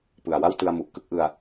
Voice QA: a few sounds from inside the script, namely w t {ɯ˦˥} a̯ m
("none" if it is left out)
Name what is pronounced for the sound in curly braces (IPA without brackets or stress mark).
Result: ɯ˧